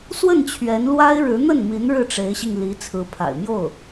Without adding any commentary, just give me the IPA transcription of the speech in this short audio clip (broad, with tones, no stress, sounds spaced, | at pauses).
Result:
s w ə˥˩ n t͡ɕʰ ɥ ɛ˧˥ n l w a˥ ɪ̯ ɻ ɻ̩˧˥ n̪ ə˥˩ n m i˧˥ n ɻ ɻ̩˥˩ ʈ͡ʂ e˧˥ ɪ̯ ɕ i˧ ŋ l i˧˥ t͡sʰ ɹ̩˧˥ pʰ a̰˨˩ ɪ̯ m j o˥˩ ʊ̯